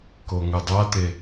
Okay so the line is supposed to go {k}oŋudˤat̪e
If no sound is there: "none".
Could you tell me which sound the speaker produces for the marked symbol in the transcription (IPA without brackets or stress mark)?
k